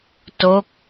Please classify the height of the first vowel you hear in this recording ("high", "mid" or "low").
mid